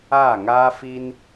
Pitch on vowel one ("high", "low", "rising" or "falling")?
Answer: falling